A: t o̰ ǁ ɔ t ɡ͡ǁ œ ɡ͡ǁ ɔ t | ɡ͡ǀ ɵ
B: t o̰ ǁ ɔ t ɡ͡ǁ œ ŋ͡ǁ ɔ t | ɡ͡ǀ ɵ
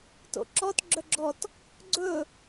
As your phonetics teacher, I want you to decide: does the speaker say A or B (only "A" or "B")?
A